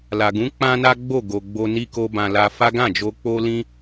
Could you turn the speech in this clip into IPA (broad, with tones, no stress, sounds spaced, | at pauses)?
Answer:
l a˨ ɡ ũ˨˦ k͡p ã˦ n a˦ ɡ͡b o˦˨ ɡ o˨ ɡ͡b o˧ n i˧ k o˧ b ã˨ l a˧ f a˦ ɡ ã˦˨ d͡ʒ o˧ k͡p o˦ l ĩ˦